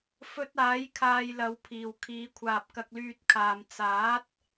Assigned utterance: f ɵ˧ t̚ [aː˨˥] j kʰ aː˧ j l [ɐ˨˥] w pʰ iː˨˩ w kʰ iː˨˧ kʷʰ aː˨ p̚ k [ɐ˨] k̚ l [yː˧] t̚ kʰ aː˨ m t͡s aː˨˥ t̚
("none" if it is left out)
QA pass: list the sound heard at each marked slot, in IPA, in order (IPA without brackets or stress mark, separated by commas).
aː˨˥, ɐ˨˥, ɐ˧, yː˧